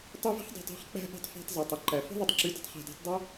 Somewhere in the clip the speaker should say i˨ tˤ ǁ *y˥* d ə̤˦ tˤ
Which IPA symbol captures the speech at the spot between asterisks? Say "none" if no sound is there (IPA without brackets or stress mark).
y˨